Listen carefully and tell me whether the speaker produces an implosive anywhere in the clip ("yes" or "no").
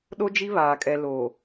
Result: yes